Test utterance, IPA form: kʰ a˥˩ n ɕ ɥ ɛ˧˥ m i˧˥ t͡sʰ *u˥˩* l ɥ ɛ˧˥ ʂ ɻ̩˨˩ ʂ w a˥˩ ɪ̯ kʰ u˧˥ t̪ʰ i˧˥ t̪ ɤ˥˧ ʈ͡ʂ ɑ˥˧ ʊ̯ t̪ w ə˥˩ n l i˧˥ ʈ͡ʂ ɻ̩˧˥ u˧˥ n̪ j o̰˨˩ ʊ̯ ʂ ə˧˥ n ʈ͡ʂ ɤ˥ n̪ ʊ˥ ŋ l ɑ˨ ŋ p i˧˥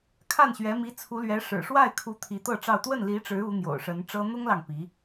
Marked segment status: incorrect: u˧˥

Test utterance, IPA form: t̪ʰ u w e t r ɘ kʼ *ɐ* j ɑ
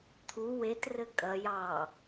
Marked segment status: correct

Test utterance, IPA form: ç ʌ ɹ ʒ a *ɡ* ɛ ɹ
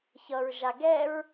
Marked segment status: correct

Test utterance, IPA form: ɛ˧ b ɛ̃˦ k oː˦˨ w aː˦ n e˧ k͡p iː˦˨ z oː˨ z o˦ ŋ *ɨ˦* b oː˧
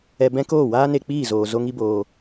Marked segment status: incorrect: i˦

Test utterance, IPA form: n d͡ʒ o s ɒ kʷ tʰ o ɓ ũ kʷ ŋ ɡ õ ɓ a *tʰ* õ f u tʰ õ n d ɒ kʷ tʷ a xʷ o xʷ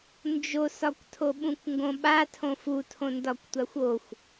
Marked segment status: correct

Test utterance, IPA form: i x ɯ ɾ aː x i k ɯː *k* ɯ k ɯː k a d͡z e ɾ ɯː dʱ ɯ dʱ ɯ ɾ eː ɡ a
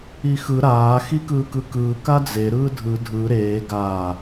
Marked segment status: correct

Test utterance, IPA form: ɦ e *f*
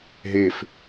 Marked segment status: correct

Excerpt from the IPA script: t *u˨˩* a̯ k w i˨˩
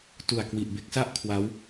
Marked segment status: correct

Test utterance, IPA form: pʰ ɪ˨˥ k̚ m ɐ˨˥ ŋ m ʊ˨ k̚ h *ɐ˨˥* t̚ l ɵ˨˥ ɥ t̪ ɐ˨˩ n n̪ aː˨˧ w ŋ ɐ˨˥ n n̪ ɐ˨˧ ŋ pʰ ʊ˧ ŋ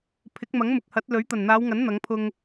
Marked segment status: correct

